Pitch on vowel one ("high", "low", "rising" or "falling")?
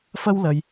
high